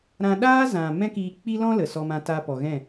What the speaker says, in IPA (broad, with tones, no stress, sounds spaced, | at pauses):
ɾ ã˧ ɗ aː˦ z ã˨ m ɛ̃˦ k iː˧ k͡p i˦ l ɔ̃˦ l ə˨ s ɔ˧ m ã˧ t a˧ p ɔ˨ ɣ ɛ̃˦˨